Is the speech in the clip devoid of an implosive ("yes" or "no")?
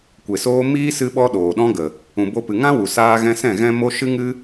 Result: no